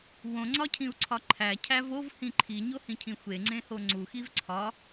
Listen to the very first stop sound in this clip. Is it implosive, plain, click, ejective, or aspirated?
click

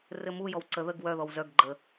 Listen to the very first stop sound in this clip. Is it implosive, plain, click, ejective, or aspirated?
click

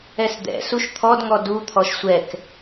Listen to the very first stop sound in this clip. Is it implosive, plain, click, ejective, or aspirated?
plain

